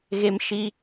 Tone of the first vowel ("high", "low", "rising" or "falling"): high